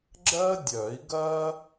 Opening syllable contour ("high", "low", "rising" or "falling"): high